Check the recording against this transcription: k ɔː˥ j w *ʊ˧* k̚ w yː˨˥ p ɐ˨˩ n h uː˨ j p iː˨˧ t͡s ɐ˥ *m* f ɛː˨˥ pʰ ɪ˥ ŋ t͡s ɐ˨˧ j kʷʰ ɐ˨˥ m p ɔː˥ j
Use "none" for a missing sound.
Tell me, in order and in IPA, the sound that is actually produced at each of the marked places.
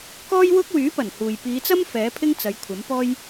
ʊ˥, m

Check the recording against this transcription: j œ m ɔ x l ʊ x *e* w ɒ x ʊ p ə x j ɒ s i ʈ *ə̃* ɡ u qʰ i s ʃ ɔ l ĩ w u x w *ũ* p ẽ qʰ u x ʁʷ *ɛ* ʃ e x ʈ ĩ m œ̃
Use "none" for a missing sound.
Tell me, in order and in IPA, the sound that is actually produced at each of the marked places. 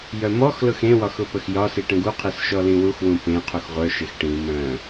ẽ, ə̃, ũ, œ

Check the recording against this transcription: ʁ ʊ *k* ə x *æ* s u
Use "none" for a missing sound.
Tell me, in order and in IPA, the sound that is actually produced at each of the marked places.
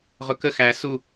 k, æ

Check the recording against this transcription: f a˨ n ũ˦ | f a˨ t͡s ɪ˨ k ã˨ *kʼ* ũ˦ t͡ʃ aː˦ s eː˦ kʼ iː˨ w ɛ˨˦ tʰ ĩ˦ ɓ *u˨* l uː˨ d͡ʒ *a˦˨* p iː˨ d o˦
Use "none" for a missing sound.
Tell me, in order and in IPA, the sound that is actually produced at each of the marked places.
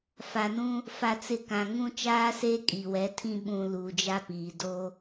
ŋ, ũ˨, a˦

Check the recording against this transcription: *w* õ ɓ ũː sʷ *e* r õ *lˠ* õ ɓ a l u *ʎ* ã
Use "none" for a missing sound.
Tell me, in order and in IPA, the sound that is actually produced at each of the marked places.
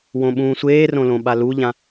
w, eː, l, ʎ

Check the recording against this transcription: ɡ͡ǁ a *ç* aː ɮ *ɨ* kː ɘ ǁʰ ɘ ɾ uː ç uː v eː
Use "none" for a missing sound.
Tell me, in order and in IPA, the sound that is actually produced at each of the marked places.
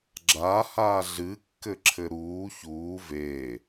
h, ɨ

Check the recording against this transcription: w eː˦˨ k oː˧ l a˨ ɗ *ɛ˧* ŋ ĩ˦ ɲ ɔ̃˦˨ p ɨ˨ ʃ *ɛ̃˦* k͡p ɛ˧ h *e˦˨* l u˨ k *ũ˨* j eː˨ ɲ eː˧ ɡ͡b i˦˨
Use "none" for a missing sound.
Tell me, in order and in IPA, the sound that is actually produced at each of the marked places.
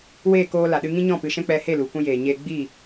ɨ˧, ɛ̃˦, e˦˨, ũ˧

